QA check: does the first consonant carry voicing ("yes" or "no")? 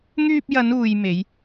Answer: yes